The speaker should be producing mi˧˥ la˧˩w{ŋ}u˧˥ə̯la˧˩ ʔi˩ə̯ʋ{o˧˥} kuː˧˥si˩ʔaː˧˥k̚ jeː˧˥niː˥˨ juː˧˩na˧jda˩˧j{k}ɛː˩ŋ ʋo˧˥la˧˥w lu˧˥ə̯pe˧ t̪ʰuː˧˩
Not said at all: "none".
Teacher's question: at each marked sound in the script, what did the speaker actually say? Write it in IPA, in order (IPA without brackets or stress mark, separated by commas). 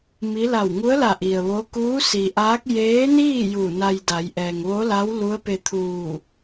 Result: ŋ, o˧˥, ʔ